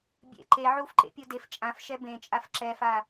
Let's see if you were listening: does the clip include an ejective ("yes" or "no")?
yes